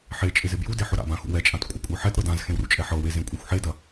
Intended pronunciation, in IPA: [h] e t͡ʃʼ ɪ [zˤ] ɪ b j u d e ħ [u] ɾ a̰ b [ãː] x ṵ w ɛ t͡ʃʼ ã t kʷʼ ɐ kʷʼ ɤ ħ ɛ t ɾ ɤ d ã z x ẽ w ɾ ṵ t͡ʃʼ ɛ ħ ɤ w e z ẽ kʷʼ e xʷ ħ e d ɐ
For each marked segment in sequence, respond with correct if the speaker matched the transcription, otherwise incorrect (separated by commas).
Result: incorrect, incorrect, incorrect, incorrect